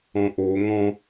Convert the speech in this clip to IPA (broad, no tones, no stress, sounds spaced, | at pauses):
ɔ̃ ʔ o ŋ ɔ̃